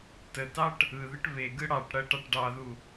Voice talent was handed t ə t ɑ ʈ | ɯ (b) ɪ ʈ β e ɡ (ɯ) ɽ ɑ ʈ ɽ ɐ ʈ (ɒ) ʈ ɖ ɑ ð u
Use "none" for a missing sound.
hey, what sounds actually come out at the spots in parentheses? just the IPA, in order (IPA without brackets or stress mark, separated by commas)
ð, ɯ, ɑ